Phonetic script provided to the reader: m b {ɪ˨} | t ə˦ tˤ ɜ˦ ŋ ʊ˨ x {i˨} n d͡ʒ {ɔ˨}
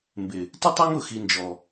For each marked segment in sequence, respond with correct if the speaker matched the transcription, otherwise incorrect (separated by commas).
correct, correct, correct